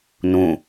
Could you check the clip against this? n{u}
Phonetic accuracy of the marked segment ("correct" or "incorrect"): incorrect